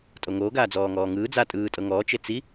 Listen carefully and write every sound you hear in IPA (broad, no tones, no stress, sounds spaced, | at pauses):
tʼ o ŋ oː ɡ aː d͡z ɔː ŋ ɔː ŋ ɯː d͡z a tʼ ɯː tʼ ɤ ŋ ɔː t͡ʃ e t͡s i